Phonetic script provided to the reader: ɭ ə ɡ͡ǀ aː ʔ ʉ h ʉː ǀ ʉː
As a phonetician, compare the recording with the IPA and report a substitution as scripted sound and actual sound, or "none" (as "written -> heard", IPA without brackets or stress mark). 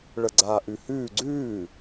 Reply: ǀ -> ɡ͡ǀ